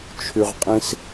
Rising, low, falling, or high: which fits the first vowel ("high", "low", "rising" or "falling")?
low